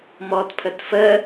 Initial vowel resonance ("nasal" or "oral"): oral